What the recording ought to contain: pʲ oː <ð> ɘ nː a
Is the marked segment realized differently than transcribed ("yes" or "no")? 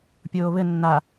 yes